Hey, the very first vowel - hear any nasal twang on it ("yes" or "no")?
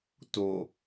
no